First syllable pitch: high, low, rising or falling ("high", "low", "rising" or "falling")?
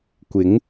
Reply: rising